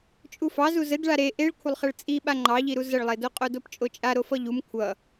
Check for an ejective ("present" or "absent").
present